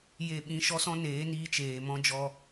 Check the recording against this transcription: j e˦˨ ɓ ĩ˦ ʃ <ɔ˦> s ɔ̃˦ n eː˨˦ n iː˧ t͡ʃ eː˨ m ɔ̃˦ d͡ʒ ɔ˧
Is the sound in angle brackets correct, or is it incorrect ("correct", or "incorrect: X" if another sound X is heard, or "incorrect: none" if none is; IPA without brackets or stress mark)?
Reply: correct